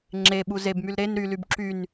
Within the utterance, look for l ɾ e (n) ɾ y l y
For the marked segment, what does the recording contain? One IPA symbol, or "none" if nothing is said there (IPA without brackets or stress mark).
n